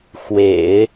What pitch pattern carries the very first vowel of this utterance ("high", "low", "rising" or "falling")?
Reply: low